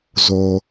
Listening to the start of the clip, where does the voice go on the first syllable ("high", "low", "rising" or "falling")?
low